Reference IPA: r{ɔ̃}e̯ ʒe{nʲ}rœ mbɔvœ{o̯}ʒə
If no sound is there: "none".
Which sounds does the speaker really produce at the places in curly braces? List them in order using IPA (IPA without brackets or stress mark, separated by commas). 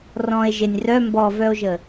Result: ɔ̃, nʲ, o̯